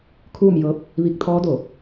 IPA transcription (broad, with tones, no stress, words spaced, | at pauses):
kʰuː˥˨mjɤː˧˥p̚ | ʋi˧k̚t̪ʰɔː˧˥do˧˩